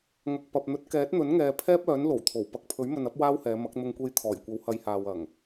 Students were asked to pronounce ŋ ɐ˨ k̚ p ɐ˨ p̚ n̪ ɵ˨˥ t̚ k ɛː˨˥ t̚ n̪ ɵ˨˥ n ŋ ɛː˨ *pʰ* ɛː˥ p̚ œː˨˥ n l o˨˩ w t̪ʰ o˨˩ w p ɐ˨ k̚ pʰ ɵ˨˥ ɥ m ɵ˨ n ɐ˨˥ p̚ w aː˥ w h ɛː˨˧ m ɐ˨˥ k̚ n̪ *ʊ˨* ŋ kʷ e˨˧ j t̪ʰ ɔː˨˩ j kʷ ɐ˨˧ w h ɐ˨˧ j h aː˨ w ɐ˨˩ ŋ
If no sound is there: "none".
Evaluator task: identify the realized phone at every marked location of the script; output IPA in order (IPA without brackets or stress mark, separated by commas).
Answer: pʰ, ʊ˨